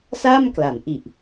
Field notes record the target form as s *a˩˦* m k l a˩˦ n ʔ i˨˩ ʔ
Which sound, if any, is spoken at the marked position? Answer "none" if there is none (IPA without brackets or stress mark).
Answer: a˥˩